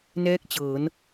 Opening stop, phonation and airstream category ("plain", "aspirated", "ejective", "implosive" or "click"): plain